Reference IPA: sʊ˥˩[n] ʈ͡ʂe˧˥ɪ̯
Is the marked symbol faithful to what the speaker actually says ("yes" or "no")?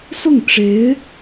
no